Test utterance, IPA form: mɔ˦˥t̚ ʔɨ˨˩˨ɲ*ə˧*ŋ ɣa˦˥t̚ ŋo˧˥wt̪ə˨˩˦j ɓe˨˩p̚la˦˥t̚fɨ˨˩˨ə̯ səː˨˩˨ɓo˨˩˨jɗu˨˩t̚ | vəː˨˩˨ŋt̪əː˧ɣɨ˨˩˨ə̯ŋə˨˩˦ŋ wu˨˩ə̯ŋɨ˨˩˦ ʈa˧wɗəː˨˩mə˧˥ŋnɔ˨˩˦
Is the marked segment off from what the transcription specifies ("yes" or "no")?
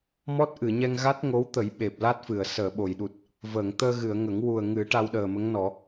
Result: yes